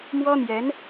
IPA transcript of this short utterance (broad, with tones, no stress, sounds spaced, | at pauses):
m w ɔ˥ n̪ j ɛ˧˥ n